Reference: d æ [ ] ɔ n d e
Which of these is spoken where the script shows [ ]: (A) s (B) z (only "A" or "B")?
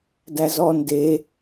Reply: B